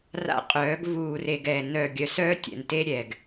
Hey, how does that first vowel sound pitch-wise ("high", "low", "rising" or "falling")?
high